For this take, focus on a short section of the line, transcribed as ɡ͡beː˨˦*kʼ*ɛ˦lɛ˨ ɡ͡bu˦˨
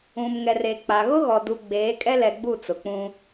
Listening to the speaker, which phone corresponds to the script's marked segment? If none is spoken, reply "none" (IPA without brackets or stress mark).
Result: kʼ